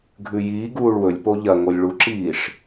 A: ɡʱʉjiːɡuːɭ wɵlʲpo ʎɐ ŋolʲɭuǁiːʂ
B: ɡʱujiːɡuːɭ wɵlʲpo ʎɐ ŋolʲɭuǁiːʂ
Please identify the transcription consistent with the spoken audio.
A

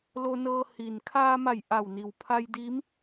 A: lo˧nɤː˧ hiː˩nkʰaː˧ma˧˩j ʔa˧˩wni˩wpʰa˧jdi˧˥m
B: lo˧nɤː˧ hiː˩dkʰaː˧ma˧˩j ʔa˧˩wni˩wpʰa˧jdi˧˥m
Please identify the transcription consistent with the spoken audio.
A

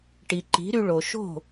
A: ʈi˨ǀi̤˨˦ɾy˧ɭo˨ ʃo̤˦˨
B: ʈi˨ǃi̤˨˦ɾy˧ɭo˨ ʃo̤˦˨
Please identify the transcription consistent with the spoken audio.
B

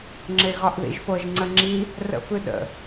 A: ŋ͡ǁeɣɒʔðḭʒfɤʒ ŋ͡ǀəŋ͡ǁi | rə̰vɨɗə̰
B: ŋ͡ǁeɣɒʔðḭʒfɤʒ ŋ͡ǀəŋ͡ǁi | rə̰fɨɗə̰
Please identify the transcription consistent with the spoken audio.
B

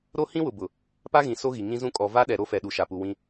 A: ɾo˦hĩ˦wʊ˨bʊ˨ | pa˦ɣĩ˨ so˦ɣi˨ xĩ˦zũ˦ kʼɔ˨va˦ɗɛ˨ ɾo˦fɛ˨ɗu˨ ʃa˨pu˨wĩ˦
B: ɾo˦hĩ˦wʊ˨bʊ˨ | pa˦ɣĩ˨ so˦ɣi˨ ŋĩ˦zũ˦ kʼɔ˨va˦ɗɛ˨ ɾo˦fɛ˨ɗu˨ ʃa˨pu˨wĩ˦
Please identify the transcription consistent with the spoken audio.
B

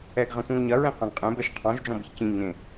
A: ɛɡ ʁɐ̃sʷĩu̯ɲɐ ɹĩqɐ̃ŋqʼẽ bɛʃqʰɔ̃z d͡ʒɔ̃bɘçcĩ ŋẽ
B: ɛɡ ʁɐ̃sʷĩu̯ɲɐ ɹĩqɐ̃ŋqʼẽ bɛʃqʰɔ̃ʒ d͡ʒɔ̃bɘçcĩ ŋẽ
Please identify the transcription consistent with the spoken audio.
B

